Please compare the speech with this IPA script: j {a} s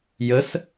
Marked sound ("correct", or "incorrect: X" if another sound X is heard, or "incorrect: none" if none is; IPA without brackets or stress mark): incorrect: ə